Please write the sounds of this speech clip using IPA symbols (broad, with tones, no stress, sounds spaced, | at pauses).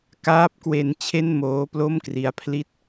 k aː˦˥ p̚ k w e˧ n t͡ɕʰ e˥˩ n m oː˦˥ p l o˥˩ m k r i˦˥ a̯ pʰ l i˥˩ t̚